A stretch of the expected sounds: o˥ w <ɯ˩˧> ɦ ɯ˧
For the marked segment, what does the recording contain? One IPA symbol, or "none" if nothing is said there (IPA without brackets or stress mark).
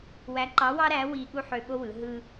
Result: ɯ˩˧